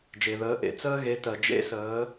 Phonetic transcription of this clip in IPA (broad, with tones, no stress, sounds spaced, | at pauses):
d͡ʒ e˩ ð əː˩˧ ʔ ḛ˩˧ t͡s əː˧ ɣ e˩˧ t ɜ˩ d͡ʒ ḛ˧˥ s əː˩˧